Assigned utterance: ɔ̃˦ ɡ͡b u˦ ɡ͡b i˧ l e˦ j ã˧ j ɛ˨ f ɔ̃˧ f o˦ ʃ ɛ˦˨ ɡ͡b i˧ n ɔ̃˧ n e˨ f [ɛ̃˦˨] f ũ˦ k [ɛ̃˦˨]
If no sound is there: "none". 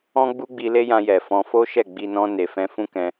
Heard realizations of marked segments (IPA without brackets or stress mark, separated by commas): ɛ̃˧, ɛ̃˧